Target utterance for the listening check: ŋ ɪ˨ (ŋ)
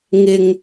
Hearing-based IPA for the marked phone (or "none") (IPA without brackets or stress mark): ŋ